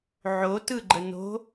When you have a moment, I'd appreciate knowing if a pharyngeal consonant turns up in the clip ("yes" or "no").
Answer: yes